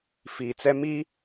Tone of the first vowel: low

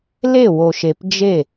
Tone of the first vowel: falling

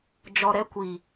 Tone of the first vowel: low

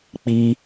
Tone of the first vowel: high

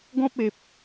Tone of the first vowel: high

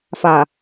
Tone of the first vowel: low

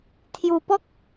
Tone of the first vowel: low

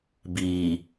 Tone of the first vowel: low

